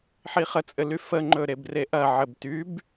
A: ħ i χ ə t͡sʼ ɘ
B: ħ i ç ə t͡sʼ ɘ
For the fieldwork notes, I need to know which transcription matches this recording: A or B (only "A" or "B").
A